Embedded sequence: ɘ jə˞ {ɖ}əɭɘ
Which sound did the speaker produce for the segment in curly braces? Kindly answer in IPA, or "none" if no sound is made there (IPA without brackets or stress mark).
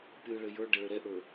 ɖ